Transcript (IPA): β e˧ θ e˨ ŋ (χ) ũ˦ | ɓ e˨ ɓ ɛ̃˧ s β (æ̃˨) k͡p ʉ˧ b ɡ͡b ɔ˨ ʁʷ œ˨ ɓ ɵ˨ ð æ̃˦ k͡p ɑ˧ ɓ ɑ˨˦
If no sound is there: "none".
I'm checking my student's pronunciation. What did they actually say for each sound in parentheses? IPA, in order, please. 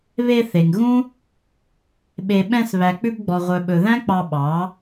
ɣ, æ˨

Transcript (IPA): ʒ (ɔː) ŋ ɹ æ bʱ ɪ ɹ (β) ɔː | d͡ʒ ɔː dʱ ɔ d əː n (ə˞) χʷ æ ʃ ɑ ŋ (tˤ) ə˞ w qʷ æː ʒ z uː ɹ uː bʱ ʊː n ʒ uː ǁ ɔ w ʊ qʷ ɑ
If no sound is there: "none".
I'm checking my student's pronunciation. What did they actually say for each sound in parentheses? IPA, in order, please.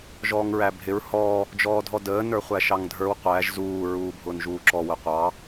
ɔː, h, ə˞, dʱ

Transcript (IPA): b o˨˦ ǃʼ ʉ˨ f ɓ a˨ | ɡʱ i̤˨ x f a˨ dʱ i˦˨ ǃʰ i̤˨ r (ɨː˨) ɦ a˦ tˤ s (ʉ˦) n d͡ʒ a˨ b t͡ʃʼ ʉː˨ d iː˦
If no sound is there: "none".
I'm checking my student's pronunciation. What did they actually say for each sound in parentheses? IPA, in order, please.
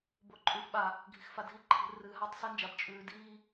ɨː˨, ɨ˦

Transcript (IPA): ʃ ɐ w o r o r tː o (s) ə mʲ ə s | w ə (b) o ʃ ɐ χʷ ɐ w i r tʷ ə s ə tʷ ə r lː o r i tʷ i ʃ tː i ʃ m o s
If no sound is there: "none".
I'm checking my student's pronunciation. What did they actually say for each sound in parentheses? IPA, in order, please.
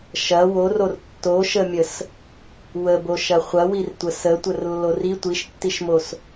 ʃ, b

